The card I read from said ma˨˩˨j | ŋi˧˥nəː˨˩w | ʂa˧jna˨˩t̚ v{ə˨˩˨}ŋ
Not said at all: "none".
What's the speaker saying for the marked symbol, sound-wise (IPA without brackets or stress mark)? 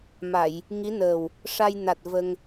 ə˧